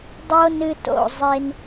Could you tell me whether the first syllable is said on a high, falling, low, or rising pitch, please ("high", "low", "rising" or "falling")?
high